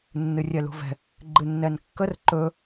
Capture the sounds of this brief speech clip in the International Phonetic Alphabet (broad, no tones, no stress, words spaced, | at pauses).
nːɨrʲɛlṳvɛ̤ | ɡ͡ǃɨnːɛnkːər ǃɵ